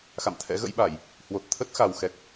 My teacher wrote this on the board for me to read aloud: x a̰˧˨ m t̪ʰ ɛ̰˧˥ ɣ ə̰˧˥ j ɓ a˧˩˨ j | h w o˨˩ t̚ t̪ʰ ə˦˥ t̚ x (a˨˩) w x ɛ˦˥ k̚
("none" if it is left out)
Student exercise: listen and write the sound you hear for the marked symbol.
a˨˩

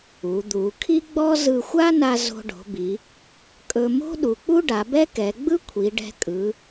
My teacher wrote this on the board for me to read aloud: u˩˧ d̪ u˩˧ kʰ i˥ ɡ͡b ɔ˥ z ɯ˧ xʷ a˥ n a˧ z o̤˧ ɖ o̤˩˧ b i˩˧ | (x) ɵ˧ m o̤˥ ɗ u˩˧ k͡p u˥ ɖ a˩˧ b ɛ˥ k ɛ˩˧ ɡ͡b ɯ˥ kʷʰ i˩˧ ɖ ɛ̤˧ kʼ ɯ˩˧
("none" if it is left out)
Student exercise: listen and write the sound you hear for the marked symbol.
kʼ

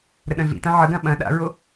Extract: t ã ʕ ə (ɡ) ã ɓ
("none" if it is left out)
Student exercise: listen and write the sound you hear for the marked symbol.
ɡ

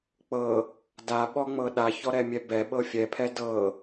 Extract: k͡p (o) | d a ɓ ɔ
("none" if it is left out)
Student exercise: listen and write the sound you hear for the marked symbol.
ɤ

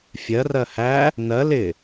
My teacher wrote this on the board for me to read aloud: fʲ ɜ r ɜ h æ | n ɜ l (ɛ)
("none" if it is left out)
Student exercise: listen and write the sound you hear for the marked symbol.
ɪ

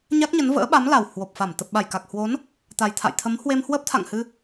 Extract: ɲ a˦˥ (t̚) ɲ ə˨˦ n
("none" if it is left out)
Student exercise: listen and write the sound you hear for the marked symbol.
k̚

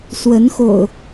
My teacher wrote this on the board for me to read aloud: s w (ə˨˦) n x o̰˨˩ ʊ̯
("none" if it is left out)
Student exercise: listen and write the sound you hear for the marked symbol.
ə˨˦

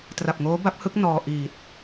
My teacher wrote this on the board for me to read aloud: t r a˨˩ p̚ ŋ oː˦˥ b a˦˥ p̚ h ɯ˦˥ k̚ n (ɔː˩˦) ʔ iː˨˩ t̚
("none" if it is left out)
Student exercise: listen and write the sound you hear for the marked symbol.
ɔː˧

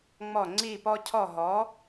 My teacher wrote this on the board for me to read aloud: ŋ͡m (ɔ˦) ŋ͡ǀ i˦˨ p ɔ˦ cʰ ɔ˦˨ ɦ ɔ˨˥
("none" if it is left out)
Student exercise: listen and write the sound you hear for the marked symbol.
ɔ˦˨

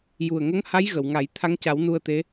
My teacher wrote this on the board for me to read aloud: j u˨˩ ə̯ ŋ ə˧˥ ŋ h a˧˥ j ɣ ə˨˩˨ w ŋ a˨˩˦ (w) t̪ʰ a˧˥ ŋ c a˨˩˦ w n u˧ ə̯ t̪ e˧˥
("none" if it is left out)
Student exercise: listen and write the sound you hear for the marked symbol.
j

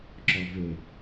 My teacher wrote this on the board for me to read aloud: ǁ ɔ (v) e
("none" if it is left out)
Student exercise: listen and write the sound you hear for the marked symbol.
v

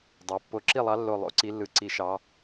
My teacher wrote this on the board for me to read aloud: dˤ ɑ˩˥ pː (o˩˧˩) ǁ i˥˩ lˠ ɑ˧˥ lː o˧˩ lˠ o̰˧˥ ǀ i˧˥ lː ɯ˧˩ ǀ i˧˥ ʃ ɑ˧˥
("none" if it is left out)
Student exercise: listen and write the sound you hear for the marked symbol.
o˧˩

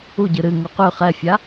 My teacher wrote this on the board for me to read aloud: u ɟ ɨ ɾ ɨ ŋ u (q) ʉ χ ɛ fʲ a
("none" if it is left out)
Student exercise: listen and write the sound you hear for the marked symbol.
q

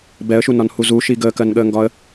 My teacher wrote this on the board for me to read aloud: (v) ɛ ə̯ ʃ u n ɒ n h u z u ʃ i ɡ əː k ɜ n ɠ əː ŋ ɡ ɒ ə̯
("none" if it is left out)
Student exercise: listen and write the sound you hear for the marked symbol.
b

